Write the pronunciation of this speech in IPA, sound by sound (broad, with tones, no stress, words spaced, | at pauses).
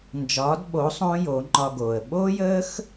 nd͡ʒɒː˨˦dɓo˨˦ sˤõː˦jo˨˦ŋ͡ǃɒ˧ɡoː˨ə̯ ɓoː˦jəː˦x